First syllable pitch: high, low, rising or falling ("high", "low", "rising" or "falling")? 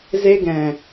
high